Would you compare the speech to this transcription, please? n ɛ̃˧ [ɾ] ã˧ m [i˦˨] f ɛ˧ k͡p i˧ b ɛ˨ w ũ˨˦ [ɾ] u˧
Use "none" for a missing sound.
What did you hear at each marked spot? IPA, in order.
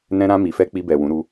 ɾ, i˨, ɾ

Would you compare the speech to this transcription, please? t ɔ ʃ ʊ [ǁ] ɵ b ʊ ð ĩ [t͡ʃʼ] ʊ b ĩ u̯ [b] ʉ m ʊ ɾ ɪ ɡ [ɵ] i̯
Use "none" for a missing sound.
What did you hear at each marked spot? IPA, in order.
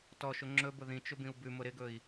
ŋ͡ǁ, t͡ʃ, b, ɵ

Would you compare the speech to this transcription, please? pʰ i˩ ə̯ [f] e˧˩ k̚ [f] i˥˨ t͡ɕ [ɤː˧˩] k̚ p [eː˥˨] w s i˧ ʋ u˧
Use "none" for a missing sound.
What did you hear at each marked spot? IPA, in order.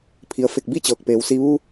f, b, ɤː˧˩, eː˩˧

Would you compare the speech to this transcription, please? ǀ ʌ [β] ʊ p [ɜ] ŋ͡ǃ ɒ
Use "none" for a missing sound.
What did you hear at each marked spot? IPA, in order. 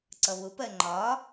β, ɜ

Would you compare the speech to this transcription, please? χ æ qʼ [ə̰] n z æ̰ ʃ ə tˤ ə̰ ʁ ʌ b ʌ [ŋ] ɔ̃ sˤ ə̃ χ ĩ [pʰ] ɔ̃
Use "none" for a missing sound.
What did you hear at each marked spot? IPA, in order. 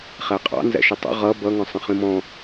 ɑ̰, ŋ, m

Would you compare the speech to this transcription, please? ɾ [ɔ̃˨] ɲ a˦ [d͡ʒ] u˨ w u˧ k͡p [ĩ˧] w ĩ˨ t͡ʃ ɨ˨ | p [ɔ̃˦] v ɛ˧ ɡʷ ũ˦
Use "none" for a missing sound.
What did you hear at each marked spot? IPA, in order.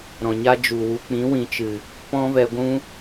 ɔ̃˨, d͡ʒ, ĩ˨˦, ɔ̃˦

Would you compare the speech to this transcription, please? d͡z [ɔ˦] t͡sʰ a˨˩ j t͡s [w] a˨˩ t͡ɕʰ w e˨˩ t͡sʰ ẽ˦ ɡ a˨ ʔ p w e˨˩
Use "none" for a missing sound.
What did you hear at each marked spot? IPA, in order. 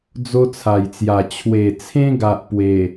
o˦, j

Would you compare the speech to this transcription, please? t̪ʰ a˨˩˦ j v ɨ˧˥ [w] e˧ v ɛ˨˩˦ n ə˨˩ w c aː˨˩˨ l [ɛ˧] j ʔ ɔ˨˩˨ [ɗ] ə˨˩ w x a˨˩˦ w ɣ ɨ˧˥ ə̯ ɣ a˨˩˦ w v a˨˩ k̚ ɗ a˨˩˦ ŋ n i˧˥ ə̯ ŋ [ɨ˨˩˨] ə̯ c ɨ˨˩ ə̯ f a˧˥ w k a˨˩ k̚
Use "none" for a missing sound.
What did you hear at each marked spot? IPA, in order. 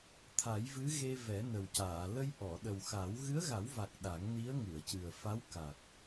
ɣ, ə˧, ɗ, ɨ˨˩˨

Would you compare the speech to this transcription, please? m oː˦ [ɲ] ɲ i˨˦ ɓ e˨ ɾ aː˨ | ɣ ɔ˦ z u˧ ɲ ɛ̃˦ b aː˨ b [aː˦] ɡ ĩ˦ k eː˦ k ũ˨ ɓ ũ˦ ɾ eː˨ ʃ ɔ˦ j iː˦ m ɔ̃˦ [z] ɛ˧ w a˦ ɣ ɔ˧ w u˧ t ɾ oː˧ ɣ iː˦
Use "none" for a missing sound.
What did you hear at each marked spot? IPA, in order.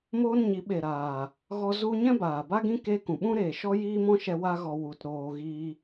n, a˦, ʃ

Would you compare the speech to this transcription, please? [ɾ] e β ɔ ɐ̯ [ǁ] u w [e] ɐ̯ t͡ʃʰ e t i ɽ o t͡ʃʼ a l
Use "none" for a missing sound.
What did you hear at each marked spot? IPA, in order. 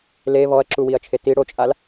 l, ǁ, i

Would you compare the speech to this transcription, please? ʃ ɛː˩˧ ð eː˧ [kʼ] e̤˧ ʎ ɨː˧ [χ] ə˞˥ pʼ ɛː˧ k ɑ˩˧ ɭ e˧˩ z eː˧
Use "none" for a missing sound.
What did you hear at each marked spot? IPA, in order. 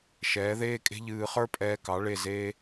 kʼ, χ

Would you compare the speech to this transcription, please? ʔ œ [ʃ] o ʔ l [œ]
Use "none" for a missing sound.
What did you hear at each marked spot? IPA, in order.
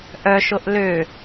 ʃ, ø

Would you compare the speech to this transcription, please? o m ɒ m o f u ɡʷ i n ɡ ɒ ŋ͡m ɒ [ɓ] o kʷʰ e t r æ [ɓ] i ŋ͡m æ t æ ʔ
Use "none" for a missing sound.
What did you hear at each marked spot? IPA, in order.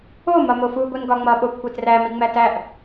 ɓ, m

